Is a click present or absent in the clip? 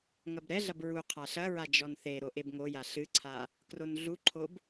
present